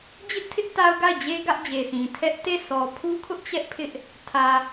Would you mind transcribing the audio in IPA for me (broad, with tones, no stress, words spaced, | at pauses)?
d͡ʑɪ˦ʔtʰɪ˦ʔ ta˦ʊ̯ɡa˦˨ɪ̯d͡ʑe˦ ɡä˦ʔd͡ʑe˨sĩ˨ tʰɛ˦ʔ te˦˨ sʰɔ˨pʰu˦kʰʊ˦ʔ t͡ɕɛ˦ʔpʰɪ˦ʔ | tʰä˨